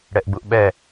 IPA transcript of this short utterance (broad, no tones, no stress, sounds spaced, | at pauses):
ɽ ɛ ʔ ɡ͡b u ʔ ɓ ɛ